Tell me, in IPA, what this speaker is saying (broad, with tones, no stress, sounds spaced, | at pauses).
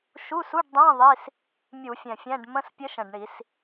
ʃ u˧˥˧ s u˧˥˧ ɖ dˤ ɛ̃˧˥˧ ðˤ i˧˥˧ s | mʲ u˧˩˧ fʲ ɛ̃˨˩ fʲ ɛ̃˧˥˧ ɖ m ə̃˧˥˧ s pʲ ə˧˥ ʃ ə̃˨˩ ɖ ɳ i˧˩˧ s